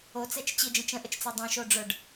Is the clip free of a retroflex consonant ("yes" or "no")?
no